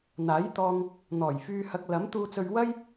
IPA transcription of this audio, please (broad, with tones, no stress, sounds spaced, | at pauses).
n̪ aː˨˥ j t̪ ɔː˧ ŋ | n̪ ɔː˨˩ j f yː˧ h ɐ˧ k̚ l ɐ˨˥ m t̪ uː˧ t͡s ɵ˧ ɥ w ɐ˥ j